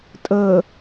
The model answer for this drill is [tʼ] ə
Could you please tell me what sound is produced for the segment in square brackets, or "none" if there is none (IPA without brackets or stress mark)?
tʼ